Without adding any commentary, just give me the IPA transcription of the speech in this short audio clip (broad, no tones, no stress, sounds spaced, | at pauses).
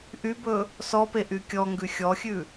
ʔ y b ɵ | s ɔ p e ʔ y kʲ ɔ ŋ ɡ ʉ xʲ ɔ xʲ ʉ